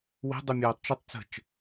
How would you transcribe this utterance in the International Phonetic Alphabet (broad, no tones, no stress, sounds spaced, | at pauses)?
w e̤ dˤ u mʲ oː tˤ t͡ʃ ə tˤ t͡s ə̤ t͡ʃ